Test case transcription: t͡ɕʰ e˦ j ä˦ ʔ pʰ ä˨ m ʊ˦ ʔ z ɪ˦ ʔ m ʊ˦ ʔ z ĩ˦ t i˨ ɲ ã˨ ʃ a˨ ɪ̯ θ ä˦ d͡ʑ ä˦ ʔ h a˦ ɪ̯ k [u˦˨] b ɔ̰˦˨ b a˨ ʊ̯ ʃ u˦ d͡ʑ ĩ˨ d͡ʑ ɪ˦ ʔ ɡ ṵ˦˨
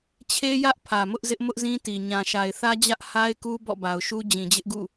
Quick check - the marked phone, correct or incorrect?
incorrect